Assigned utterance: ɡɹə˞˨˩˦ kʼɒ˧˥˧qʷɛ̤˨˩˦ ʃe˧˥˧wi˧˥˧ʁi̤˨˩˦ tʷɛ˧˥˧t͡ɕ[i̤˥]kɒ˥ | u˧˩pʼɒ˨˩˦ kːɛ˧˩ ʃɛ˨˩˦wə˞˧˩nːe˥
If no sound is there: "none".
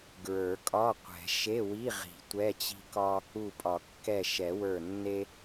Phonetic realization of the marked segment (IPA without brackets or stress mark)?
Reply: i̤˥